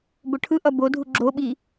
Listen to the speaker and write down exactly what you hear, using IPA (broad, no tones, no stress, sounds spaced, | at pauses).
b o ʈʰ ɯ ʔ ʌ b o dʱ u ɡ͡ǁ o ɓ i